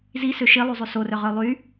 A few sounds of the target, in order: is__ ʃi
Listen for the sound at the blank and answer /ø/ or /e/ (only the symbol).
ø